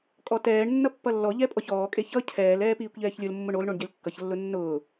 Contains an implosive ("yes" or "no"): no